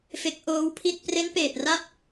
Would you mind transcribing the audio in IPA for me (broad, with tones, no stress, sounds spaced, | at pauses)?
f e˦˥ k̚ ʔ oː˦˥ w pʰ i˥˩ t̚ p r e˦˥ n p eː˨˩ t̚ r a˦˥ p̚